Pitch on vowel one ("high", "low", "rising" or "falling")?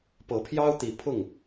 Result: rising